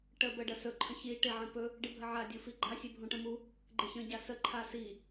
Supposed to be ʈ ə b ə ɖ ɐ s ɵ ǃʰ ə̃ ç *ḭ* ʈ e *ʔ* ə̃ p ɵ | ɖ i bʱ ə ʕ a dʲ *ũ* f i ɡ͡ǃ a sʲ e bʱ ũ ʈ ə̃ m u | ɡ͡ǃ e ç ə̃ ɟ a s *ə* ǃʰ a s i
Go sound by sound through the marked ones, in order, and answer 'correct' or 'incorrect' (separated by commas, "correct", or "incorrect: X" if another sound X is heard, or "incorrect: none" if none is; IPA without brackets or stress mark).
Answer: incorrect: i, incorrect: ʕ, incorrect: u, correct